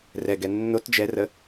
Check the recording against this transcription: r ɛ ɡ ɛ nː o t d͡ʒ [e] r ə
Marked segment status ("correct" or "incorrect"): incorrect